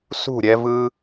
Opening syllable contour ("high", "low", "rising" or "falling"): falling